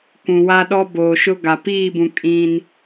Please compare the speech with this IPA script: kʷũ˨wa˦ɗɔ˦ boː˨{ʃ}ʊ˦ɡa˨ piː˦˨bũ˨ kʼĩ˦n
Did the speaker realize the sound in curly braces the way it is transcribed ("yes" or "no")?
yes